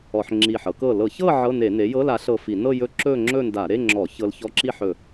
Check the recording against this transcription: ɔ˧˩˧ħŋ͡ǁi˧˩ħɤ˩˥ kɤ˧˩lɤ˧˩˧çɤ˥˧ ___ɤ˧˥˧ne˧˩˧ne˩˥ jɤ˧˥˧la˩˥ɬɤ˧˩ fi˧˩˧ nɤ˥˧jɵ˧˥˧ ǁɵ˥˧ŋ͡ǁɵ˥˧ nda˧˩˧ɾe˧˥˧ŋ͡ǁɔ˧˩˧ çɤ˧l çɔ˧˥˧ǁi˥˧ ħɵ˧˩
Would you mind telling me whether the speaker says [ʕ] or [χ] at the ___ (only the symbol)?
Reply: ʕ